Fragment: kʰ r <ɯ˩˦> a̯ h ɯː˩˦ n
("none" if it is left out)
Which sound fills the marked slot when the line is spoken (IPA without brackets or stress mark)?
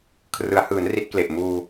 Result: ɯ˩˦